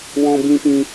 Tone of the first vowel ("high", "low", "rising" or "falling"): high